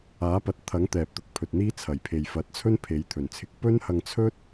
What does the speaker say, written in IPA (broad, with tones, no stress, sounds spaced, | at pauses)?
aː˨˥ p ɐ˨˥ t̚ t̪ʰ ɐ˨˥ ŋ t̪ ɛː˨ p̚ t̪ ʊ˨˥ k̚ pʰ ɵ˨ t̚ n̪ iː˥ t͡sʰ ɐ˨˩ j pʰ e˨ j f ɐ˨˥ t̚ t͡sʰ ɵ˥ n pʰ e˨˧ j t̪ʰ ɵ˨˩ n t͡sʰ ɪ˧ k̚ p ɵ˥ n h ɐ˧ ŋ t͡sʰ ɵ˥ t̚